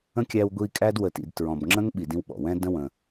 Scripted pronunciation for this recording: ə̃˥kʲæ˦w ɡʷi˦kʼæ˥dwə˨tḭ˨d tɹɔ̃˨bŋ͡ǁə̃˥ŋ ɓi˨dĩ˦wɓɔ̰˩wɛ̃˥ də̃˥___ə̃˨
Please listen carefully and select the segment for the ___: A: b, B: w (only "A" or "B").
B